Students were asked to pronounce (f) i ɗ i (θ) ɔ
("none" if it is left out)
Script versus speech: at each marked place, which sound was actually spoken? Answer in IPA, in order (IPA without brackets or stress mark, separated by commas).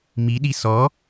m, s